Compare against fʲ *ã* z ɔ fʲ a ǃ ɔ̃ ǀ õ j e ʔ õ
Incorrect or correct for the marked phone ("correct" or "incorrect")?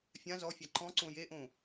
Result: correct